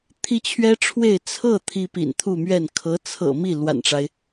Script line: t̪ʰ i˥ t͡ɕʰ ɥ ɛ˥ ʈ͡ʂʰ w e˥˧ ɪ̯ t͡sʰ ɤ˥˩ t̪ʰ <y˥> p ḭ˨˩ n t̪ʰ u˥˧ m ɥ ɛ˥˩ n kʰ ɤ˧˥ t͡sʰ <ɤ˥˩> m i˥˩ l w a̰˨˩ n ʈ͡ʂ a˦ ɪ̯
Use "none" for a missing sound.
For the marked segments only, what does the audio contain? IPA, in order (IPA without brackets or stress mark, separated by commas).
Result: i˥, ɤ̰˨˩